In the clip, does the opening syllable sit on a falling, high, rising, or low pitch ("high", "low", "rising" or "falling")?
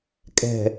low